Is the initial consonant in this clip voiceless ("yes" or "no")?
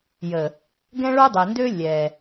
no